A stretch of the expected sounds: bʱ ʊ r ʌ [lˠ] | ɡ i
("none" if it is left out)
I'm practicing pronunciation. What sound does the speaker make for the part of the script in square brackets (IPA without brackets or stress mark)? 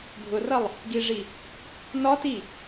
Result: lˠ